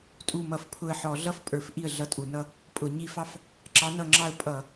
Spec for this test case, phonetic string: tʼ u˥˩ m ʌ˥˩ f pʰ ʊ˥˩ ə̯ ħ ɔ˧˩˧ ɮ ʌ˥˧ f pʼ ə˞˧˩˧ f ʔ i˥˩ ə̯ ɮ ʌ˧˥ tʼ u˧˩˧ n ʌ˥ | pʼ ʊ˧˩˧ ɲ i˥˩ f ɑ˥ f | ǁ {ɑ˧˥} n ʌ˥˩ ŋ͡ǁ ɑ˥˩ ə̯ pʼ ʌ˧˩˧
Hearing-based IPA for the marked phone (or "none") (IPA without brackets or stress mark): ɑ˧˥